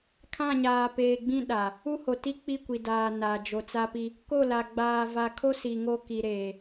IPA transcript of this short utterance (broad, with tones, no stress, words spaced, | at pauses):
kʰã˦˨ɲaː˨peː˨ɡ͡bĩ˦ ɗa˨ | u˦ho˨ ti˦k͡pi˦˨kʷi˨ daː˨ na˨ d͡ʒo˨t͡sa˦pi˦ | ko˦˨la˨ ɡ͡baː˨va˨kʰo˦ si˨ŋo˦ ki˨ɾeː˨